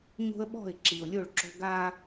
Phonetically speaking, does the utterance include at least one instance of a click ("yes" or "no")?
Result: yes